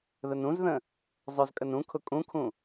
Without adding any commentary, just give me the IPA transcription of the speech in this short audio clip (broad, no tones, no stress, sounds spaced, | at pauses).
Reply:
ð ə n ũ z ð ə̃ | zˤ œ z kʼ ə n ũ kʰ ʊ kʼ ũ kʰ ũ